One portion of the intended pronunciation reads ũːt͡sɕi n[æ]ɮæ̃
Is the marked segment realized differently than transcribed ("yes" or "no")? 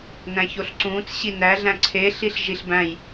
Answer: no